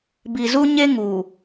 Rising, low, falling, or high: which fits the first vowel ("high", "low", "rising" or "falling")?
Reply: low